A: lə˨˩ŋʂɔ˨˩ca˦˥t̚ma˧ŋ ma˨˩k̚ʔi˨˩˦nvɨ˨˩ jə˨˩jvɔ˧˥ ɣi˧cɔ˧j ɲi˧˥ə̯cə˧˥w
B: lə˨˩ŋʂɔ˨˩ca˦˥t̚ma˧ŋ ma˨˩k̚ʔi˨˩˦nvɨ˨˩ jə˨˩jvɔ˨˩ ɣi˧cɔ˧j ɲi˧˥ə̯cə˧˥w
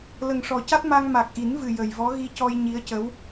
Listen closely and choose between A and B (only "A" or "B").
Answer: A